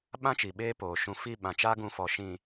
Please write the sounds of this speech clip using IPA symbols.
ɓã˦t͡ʃi˨ɓeː˦ poː˨ ʃũ˨fi˦˨ɓã˨t͡ʃaː˦ ɡũ˦fɔ˨ ʃĩ˨

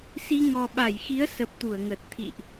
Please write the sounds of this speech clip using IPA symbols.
si˧ ŋɔ˨˩ɓa˧˩jxi˨˦ə̯ sə˨˩p̚t̪u˧˩ə̯ ŋə˨˩t̚t̪ʰḭ˧˨ʔ

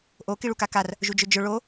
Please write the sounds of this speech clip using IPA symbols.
ʔo kiɭukakar | ʒud͡ʒʊd͡ʒʊ ɭo

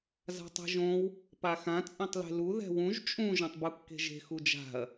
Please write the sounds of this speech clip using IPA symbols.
za̤tˤe̤ʒõw | paxã t͡sʼɛ̃tˤle̤lu ðɛ̤wũʒ t͡ʃʼũ ʒõtˤbukːe̤ʒe̤ xud͡ʒa̤ɐ̯

